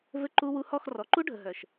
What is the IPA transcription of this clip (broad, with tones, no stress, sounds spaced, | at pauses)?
v ɘ˧ ǃ u˧ w u˧ h ɔ˦˨ x r ɔ˨ ǃ u˦ ɖʱ ə˨ ɦ œ˨ ʃ